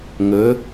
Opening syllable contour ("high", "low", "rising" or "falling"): rising